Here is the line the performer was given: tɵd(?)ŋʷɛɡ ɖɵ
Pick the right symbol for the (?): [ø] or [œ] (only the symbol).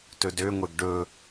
ø